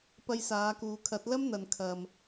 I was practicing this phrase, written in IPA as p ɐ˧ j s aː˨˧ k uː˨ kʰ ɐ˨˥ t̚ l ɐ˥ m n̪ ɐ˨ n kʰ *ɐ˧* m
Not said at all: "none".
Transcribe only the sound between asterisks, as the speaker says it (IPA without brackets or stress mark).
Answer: ɐ˨